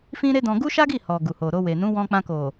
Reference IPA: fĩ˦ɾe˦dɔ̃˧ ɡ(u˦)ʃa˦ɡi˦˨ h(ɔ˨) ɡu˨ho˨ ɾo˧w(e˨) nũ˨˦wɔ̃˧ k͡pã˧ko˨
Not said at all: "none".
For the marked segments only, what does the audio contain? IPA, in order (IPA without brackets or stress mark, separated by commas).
u˦, ɔ˨, e˨